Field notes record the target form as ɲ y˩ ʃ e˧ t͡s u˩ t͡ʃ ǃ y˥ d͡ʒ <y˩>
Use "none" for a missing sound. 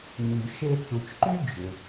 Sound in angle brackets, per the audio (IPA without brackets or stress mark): ʏ˩